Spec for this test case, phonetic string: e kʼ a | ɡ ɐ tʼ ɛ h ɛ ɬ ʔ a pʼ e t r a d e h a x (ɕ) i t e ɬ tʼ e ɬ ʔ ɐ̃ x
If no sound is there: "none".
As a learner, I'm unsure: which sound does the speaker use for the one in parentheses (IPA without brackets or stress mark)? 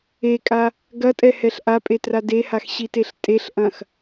ɕ